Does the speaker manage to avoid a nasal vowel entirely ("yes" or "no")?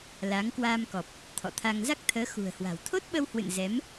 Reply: yes